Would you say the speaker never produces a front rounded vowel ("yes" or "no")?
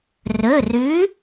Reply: yes